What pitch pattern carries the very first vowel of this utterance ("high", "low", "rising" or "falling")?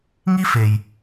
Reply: high